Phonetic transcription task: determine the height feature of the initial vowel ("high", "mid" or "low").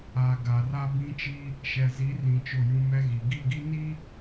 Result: low